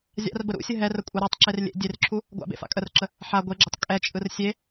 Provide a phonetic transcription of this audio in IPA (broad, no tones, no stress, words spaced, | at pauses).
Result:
zʲa̰rbə ɾṵsʲə ɦɛrə kʷʼɛɾatˤǁer lʲḛ dʲerǁʰu | ɡʷa̰bḛ fa̰kʼərǁə | ħa ɡʷeɡ͡ǁʏtˤ kʼɛt͡ʃʼɯr sʲe